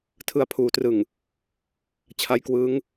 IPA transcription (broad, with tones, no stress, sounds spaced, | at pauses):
tʰ ɯ˧ a̯ pʰ uː˨˩ t r ɯ˨˩ ŋ | t͡ɕʰ a˦˥ j k w ɯː˦˥ ŋ